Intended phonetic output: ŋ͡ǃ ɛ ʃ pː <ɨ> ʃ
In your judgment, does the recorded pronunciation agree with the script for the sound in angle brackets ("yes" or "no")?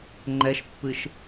yes